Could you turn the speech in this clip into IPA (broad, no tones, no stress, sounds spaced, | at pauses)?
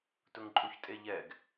t ʊ ŋ ǃʼ u ç tʼ e ʎ ɛ ɡ